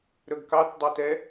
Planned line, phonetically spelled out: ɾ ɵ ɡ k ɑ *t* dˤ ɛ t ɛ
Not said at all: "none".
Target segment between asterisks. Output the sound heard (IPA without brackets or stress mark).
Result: t